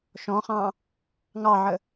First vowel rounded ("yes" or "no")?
yes